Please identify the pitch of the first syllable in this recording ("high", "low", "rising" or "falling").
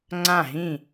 falling